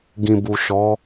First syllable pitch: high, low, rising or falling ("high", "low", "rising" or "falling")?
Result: low